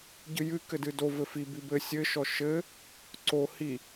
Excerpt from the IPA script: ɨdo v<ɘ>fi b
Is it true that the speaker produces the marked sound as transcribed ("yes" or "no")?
yes